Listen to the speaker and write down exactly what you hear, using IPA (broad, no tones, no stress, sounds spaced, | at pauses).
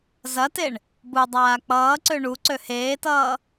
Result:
z ɐ t e ɳ | b u dˤ aː k͡p ʌː ǀ ø ɳ u ǀ ø h eː t ʌː